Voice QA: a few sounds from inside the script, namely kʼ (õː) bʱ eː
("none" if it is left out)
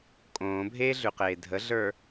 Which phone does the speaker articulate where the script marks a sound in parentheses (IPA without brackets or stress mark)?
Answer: õː